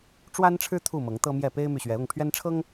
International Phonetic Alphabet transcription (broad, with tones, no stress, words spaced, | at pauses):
ʈ͡ʂwa˦nʈ͡ʂʰɻ̩˦ t̪ʰu˥˨ mɤ˨˦ŋt̪ɤ˦mjɛ˥˨ pe˦ɪ̯my˨ɕɥɛ˨˦ ʊ˥˨ŋpʰɥɛ˦nʈ͡ʂʰɤ˦ŋ